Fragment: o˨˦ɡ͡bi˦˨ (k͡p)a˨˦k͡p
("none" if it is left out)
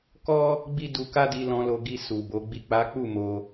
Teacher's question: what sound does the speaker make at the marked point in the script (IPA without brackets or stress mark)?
k͡p